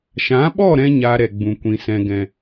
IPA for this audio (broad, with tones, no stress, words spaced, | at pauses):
ʃã˨˦ɓɔ˦˨ ɾɛ̃˦ɲa˧ɾɛ˨ ɡ͡bũ˨kʷĩ˨sɛ̃˨ ɡɛ̃˨